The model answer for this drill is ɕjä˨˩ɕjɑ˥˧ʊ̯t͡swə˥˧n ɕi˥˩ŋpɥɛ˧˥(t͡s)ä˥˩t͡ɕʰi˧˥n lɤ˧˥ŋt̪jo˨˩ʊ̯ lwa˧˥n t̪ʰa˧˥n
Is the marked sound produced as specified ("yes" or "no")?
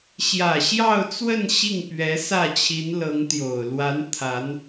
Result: no